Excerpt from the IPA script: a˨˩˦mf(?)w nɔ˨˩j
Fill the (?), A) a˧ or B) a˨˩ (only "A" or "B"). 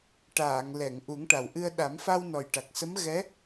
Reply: A